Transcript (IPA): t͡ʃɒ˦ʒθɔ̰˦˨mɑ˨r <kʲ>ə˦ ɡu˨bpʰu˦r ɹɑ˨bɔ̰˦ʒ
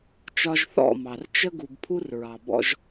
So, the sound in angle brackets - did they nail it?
no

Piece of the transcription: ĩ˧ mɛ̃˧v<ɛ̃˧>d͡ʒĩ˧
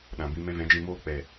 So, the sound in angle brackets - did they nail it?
no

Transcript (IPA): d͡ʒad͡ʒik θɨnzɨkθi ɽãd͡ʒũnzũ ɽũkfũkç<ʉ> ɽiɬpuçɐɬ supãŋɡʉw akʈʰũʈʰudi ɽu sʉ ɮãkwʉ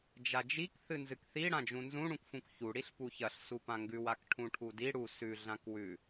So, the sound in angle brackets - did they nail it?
no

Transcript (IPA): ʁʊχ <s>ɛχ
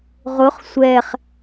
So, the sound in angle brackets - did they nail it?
no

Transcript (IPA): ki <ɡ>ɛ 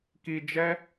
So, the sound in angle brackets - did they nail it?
no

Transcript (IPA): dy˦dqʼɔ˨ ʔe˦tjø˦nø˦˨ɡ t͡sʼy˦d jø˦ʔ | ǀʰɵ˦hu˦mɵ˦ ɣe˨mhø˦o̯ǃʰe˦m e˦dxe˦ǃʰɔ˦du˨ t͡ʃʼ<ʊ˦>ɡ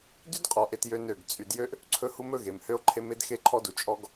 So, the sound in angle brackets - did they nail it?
no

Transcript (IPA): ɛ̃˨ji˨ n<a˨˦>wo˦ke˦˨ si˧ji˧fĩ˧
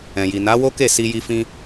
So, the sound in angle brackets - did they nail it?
yes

